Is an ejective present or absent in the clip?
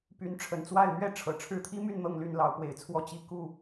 absent